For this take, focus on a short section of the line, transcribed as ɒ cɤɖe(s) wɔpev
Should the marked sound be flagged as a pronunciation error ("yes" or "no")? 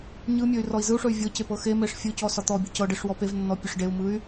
yes